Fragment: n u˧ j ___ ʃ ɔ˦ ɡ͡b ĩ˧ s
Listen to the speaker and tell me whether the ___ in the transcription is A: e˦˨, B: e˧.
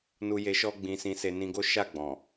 B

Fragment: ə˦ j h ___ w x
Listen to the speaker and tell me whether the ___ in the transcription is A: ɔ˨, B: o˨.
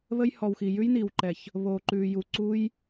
A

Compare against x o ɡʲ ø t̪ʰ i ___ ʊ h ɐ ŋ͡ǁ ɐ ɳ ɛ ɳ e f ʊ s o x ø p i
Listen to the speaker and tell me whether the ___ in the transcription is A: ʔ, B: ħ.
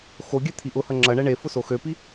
A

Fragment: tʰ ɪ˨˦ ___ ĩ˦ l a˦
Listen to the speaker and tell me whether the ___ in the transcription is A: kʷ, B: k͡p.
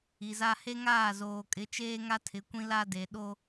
A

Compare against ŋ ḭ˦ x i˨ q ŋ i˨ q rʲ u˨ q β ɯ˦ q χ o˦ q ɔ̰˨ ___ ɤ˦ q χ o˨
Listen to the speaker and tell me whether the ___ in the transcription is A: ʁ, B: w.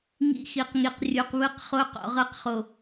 A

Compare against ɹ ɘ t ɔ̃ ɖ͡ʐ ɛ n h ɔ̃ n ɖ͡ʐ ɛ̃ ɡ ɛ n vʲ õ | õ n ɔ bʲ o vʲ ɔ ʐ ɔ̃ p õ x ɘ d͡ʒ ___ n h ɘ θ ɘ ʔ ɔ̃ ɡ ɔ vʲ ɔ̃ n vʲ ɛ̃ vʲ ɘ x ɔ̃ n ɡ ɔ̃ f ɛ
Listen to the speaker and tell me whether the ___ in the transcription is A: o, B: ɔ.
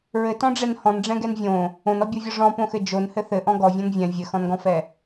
A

